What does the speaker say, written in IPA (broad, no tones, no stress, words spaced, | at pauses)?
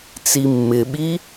t͡simːɪɓi